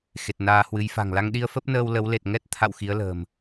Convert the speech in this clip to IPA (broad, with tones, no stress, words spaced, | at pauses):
xe˨˩t̚naː˧hwɨ˨˦jfa̤˨˩ŋ la˧ŋɗi˧ə̯fə˦˥p̚nəː˧w lə˨˦wle˨˩t̚ ŋɛ˦˥t̚t̪ʰa̰˧˨w xi˨˦ə̯lə̤ː˨˩m